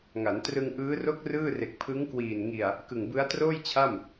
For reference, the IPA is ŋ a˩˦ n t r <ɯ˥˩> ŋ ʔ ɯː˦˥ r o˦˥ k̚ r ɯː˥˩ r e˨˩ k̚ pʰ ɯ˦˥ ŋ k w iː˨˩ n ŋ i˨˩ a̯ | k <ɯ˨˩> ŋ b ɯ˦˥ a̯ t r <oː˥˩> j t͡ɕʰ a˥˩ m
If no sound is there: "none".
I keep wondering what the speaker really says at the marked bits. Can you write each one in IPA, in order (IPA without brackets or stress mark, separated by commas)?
ɯ˧, ɯ˨˩, oː˥˩